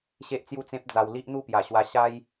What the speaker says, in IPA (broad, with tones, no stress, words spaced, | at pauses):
ɕe˦ʔt͡sju˥˧t͡sẽ˦p̚d͡za˧w li˦ʔ n̪u˥˧pja˨˩ɕwa˧ ɕa˦j